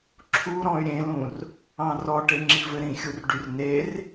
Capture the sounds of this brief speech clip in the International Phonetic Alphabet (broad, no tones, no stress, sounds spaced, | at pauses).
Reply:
ǁʰ u ɾ ɔ̃ y̯ ɾʲ ẽ l ũ r | ɑ̃ r ɔ ʈ e ŋ͡ǁ i v ɘ ɾ ĩ xʲ u r ɖ y r n e r